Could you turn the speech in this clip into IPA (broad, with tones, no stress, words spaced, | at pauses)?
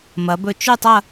mɐ˩˧bɵ˧˩ t͡ʃʉ˥˧tˤɐ˥˧